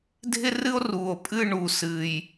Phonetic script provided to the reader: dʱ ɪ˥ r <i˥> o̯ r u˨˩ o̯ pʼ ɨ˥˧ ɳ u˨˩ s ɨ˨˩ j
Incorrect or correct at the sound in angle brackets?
incorrect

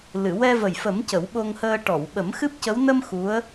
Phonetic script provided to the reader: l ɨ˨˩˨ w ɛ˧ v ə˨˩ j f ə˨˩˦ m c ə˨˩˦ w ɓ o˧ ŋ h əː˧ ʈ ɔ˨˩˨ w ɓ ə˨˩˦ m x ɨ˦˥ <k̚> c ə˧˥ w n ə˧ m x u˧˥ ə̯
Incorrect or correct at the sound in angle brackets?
incorrect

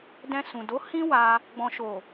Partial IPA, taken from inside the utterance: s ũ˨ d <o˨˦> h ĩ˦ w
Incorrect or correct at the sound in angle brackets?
correct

